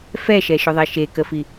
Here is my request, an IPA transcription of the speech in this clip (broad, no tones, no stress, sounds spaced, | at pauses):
f ɛ ʃ ɛ ʃ ɵ ðˤ e ʃ e k ə f i